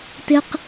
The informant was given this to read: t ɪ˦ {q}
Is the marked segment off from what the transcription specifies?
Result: no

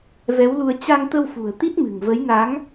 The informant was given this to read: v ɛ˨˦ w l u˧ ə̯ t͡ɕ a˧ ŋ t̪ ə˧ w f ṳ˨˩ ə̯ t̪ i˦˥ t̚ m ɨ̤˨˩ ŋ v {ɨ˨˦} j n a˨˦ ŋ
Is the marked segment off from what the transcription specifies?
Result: yes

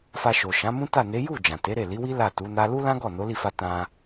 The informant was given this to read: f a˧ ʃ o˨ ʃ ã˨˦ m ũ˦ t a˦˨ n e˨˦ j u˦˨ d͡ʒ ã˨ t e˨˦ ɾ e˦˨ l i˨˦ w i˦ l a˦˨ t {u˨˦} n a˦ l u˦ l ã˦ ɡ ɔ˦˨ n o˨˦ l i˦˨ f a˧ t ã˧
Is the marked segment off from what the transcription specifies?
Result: no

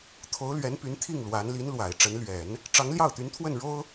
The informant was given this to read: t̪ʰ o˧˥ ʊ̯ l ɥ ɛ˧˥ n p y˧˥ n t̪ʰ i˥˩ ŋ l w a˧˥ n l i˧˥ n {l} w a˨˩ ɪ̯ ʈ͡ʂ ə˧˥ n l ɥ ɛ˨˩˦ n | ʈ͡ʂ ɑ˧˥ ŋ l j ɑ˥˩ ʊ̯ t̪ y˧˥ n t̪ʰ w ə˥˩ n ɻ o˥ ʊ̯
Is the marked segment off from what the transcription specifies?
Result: no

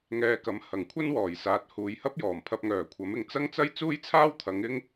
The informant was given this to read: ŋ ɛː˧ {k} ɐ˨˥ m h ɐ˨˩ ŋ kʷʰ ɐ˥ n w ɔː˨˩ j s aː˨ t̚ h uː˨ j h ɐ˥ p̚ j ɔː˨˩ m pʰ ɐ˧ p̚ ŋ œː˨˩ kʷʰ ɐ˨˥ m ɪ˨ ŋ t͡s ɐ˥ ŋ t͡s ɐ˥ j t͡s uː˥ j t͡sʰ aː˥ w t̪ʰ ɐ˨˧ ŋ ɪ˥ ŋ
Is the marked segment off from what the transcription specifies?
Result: no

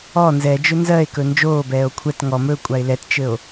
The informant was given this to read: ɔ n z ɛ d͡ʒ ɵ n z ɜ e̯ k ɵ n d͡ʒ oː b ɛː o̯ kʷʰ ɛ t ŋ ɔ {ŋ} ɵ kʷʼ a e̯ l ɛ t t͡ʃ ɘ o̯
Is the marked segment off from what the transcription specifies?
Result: yes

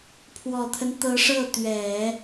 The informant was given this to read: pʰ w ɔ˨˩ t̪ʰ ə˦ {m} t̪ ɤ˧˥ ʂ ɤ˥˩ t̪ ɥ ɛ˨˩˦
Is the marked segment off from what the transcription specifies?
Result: yes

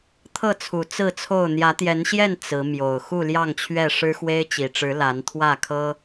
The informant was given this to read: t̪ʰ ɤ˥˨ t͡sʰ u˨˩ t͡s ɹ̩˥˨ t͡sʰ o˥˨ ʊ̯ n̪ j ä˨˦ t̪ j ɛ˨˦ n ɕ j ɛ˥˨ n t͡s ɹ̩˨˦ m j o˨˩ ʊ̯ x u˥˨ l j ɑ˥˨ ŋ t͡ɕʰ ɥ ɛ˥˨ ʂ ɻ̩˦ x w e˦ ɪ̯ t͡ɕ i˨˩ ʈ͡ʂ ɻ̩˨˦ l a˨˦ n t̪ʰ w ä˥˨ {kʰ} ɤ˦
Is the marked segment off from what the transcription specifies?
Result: no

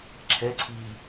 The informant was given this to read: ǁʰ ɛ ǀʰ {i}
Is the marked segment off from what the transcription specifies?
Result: yes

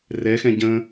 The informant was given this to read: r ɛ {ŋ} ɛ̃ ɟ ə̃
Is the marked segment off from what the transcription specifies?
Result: yes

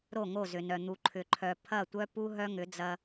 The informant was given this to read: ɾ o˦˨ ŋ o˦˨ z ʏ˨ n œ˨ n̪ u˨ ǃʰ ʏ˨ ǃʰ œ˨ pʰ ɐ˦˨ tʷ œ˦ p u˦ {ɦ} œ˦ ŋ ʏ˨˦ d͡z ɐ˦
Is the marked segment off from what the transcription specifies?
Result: no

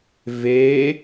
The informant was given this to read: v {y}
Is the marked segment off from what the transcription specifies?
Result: yes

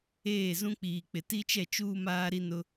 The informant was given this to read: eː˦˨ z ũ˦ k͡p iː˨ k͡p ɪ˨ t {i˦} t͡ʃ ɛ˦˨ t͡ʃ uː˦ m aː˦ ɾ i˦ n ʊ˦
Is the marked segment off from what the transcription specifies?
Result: no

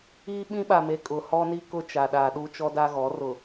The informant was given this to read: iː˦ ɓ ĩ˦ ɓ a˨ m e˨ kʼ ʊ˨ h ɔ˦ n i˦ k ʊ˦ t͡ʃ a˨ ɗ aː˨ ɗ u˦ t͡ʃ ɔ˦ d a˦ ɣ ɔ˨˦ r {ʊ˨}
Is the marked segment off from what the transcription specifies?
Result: no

